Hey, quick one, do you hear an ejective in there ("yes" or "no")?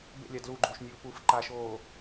no